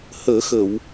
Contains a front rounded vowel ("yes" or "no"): no